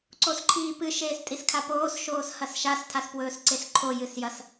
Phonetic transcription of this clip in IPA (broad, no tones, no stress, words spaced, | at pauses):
ǀosǃʰiːpɨ ʃeːstʼiskʰapoːs ʃoːshɐsʃas tʰaspwɵːsǀesǃʰo jɨsjɐs